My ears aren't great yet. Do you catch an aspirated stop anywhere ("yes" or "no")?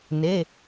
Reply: no